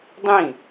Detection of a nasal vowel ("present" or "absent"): present